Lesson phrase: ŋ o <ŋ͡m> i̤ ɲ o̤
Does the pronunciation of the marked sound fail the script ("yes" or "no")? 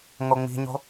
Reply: no